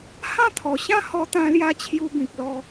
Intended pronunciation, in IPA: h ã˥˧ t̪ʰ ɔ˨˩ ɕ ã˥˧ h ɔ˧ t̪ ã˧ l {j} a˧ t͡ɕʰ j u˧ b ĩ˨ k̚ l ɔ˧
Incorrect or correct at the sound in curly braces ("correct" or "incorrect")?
correct